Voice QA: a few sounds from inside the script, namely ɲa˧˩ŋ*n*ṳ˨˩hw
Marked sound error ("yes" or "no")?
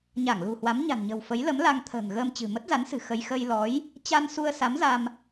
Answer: yes